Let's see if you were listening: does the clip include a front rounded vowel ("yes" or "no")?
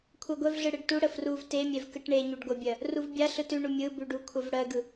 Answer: no